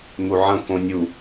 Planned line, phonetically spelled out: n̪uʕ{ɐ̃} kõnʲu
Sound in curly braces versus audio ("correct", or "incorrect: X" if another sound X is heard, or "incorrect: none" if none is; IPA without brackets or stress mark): correct